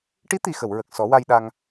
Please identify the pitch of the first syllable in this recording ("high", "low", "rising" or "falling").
rising